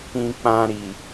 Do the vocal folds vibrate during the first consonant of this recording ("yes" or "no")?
no